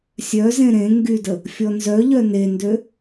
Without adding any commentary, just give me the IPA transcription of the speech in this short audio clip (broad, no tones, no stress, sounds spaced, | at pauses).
sʲ œ z ẽ ɾ ẽ ŋ ɡ y d ə | fʲ ɔ n z œ ʎ œ n e n d ø